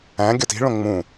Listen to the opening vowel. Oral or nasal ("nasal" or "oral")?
nasal